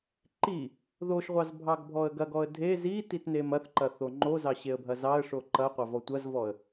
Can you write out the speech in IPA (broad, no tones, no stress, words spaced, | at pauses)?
ǃi | ðoʃʁʷɑz bʱɑɡbʱɔə̯ɡɐɡɔə̯ dʱe zi titnemɐθǃɐ θoŋ͡ǃozɑ ɕeə̯bʱɐzɑə̯ʂo ǃɐ qʷɑvɔtʷɐzvɔə̯